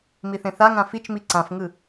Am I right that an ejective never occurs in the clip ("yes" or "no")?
yes